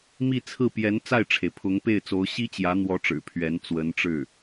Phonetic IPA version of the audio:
m i˥˧ t͡sʰ ɹ̩˥˩ p j ɛ˧˥ n t͡s a˥˩ ɪ̯ ʈ͡ʂʰ e˩ ɪ̯ pʰ ʊ˧˥ ŋ p e˥˩ ɪ̯ t͡s o˧˥ ʊ̯ ɕ i˥ t͡ɕ j ä˧˥ n̪ w ɔ˧˥ ʈ͡ʂ ɻ̩˨˩ pʰ ɥ ɛ˧˥ n t͡s w ə˧˥ n ʈ͡ʂ ɻ̩˥˩

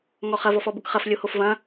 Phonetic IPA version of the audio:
ŋ ɔ χ ɐ v ɔ f ɔ b ʊ k χ ɐ f lʲ o h o f v ɐ̃

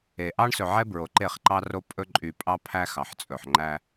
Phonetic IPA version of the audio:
e˨ ʔ ɑ˦ ɳ s ɵ˨ ʕ ɛ˦ b ɹ o˨ ǃ e˦˨ χ ǃ ɑ˦ r o˦ pʼ ɵ˦ ǃʼ y˦ pʼ ɑ˦ pʰ æ˦ x ɑ˨ ħ t͡sʼ ɵ˨ ħ ŋ͡ǃ æ˦

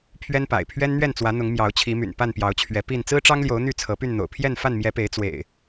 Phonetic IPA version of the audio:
pʰ ɥ ɛ˦ n p a̰˨˩ ɪ̯ pʰ ɥ ɛ˦ n n̪ ɥ ɛ˥˨ n t͡s w ä˨˦ n̪ ʊ˨˦ ŋ m j ɑ˨˦ ʊ̯ t͡ɕʰ i˨˦ m y̰˨˩ n p a˥˨ n p j ɑ˨˦ ʊ̯ t͡ɕʰ ɥ ɛ˨˦ p i˥˨ n t͡s ɹ̩˦ ʈ͡ʂ ɑ˦ ŋ l j o˨˦ ʊ̯ n̪ y˥˨ t͡sʰ ɤ˨˦ p y˥˨ n n̪ o̰˨˩ ʊ̯ pʰ j ɛ˥˨ n f a˥˨ n m j ɛ˨˦ p e˨˦ ɪ̯ t͡s w ḛ˨˩ ɪ̯

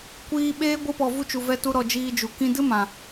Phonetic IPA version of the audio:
kʷ iː˧ ɓ eː˦ ɡʷ ɨ˧ p ɔ˨ v u˧ t͡ʃ u˨ v ɛ˧ t u˧ ɾ ɔ˨ d͡ʒ iː˧ d͡ʒ u˨ k ĩ˧ d ɨ˦ m ã˨

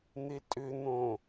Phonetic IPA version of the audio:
n̪ ɪ tʼ ʏ n̪ õ

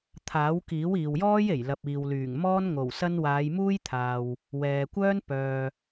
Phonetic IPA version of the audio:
t̪ʰ aː˨˥ w k iː˨˥ w iː˨ w j ɔː˥ j e˨˩ j l ɐ˨ p̚ iː˨ w l yː˨˩ ŋ m ɔː˥ n ŋ o˨˩ w s ɐ˥ n w aː˨˧ j m uː˥ j t̪ʰ aː˨ w | w ɛː˨ kʷ œː˥ n p œː˨

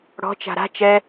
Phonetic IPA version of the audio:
ɽ ɔ̤ t͡ʃ a̤ ɾ a̤ t͡ʃ ɛ

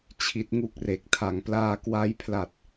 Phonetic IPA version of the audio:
t͡ɕʰ i˦˥ t̚ ŋ u˥˩ k̚ r e˨˩ k̚ tʰ a˩˦ ŋ p l aː˧ k w a˦˥ j pʰ l a˨˩ t̚

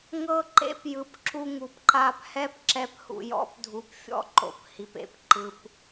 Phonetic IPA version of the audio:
ŋ ɤ˧ ǃ ḛ˧ p j ɯ˩ p ǁ u˧ ŋ u˩ p ǃ a˧ p h ɛ˥ p ǁ ɛ˧ p h ṵ˩ j ɔ̰˧ p dʱ u˩ p fʲ ɔ̰˧ ǃ o̰˩ p h i˩ p ḛ˩ p ǃ ɯ˩ p

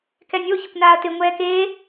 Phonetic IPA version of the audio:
k ɛ nʲ o ç ɪ kʷ n aː ɐ̯ t ɪ ŋʷ ɛː k eː

